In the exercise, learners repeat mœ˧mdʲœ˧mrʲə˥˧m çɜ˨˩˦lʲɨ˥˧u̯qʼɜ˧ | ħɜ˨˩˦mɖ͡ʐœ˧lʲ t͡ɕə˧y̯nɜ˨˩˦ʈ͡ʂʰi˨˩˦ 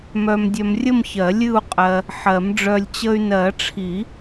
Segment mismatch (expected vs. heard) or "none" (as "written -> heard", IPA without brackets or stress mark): none